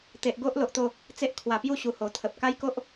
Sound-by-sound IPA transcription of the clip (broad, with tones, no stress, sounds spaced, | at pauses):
t̪ e˨ ʔ ɡ o˦ ʔ l o˨ ʔ t̪ o˥˧ | t͡s e˦ ʔ kʰ w a˨˩ p j u˥˧ ɕ u˨˩ h o˨˩ t̪ʰ ə˨ p̚ k a˦ j k o˦ ʔ